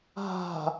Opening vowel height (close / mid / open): open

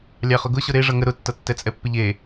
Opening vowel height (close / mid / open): open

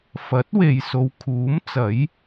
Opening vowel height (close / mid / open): open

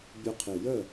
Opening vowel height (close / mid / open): close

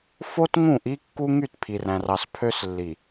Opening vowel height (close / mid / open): mid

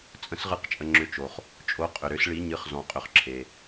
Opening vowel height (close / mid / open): mid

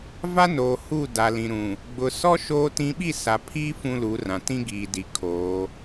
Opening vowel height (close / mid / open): open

